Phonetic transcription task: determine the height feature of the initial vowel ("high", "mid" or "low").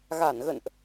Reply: low